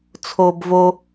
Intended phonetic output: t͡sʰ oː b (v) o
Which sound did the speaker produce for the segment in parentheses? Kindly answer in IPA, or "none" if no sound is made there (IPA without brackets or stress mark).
v